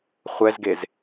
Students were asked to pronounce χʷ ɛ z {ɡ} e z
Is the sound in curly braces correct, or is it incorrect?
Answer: correct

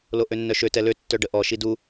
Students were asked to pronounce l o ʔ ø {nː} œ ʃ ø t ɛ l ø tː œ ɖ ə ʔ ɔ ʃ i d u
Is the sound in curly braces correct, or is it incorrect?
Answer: correct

